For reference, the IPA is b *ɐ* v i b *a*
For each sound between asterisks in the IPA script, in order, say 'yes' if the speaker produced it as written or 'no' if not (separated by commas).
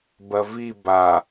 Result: yes, yes